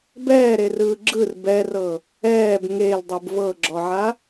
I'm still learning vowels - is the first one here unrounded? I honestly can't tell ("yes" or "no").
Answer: yes